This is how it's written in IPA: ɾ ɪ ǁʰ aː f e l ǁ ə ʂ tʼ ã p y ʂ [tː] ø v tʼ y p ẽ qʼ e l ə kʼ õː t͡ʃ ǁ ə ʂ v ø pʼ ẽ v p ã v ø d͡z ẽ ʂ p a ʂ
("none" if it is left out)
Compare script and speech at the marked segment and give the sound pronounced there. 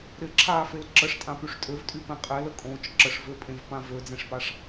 tʼ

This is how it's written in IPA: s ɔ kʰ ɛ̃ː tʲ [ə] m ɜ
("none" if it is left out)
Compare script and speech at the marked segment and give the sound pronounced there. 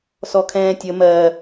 ə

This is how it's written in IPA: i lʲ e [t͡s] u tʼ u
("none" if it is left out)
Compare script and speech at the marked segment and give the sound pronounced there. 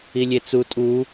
t͡s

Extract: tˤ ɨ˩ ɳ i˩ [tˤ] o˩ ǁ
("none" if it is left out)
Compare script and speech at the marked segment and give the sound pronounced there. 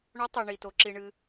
t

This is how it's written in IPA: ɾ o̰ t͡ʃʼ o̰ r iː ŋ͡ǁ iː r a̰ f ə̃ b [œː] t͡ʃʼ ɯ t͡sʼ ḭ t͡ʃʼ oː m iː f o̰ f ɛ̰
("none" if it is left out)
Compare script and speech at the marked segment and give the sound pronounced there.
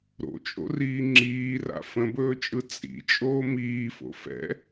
ɵː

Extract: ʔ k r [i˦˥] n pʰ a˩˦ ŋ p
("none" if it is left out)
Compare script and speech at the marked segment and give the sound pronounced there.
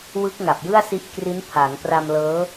i˦˥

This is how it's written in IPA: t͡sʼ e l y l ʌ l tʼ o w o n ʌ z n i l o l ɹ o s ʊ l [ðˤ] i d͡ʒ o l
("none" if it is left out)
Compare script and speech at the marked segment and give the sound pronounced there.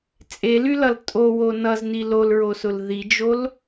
ð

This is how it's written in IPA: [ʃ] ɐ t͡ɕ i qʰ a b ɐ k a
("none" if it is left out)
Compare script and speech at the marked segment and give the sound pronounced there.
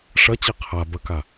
ʂ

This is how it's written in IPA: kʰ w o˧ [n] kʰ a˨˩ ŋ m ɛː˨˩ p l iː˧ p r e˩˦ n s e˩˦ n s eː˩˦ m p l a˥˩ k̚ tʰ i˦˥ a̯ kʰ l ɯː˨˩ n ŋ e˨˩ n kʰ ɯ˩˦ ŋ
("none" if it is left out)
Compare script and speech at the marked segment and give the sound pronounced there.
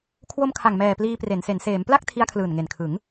m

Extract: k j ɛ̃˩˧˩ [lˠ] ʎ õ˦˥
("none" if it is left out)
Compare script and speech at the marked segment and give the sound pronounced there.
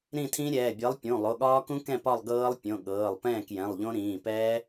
lˠ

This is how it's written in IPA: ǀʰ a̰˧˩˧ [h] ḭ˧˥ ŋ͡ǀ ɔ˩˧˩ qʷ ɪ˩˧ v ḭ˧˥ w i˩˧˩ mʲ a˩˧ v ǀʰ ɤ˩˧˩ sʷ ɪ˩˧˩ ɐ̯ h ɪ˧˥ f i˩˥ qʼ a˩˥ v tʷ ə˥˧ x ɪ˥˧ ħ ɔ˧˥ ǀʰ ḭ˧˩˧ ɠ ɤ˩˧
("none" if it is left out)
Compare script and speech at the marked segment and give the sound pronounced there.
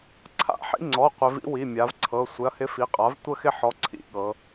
ħ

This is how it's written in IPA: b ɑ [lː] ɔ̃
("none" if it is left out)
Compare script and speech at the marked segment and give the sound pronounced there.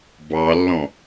lː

